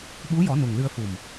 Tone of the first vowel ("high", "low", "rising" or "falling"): rising